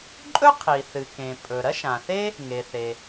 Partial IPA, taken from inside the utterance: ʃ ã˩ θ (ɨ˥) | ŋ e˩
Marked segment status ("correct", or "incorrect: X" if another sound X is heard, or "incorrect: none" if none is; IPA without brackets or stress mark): incorrect: e˥